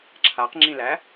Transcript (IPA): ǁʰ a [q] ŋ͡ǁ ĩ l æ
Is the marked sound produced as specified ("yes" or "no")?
yes